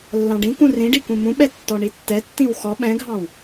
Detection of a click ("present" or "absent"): absent